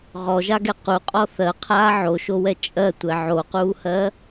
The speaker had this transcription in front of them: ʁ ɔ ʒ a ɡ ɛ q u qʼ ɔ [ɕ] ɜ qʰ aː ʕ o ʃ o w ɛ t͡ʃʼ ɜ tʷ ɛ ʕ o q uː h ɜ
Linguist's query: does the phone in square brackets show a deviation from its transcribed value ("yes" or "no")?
yes